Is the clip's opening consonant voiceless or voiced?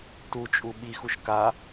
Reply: voiceless